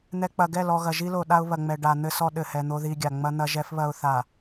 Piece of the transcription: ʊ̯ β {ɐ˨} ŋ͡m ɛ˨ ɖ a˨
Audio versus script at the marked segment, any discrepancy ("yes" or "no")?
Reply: no